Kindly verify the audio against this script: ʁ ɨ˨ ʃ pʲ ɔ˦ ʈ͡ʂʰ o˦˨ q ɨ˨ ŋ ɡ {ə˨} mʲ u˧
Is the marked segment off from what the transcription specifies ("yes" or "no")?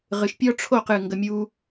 no